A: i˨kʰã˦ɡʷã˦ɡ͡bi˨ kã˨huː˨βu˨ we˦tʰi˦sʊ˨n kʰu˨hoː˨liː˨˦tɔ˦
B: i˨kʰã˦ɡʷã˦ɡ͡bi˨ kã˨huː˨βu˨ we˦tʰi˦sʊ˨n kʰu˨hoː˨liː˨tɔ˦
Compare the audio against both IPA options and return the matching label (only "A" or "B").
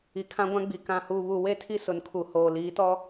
A